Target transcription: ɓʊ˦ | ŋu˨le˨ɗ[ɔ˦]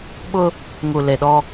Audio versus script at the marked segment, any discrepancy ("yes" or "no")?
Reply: no